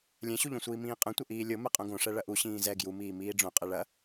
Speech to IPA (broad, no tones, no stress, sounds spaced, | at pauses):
lʲ ɛ̃ ɕ u ʎ õ sʷ iː m ĩː qʼ ɐ̃ tʷ ɐ ʔ iː lʲ o m ɛ qʼ õ ɡ õ ʂ ɛ ɭ ɐ ʔ u ɕ ĩː z ɛ ɡ j u m iː m iː ɖ͡ʐ õ qʼ ɛ ɭ ɐ